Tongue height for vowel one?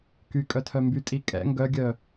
high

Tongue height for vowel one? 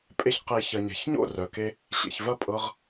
mid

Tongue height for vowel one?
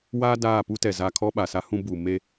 low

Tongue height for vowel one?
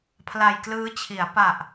low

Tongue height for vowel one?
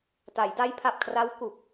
low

